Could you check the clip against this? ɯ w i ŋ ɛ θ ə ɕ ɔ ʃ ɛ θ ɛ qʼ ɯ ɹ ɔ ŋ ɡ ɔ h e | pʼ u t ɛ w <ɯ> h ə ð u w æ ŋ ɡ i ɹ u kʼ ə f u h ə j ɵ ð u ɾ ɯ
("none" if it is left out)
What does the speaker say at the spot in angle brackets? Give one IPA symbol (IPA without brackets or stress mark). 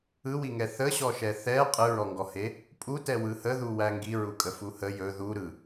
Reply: ɯ